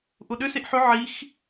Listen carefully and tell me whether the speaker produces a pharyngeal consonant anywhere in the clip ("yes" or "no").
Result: yes